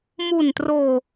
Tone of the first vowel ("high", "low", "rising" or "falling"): low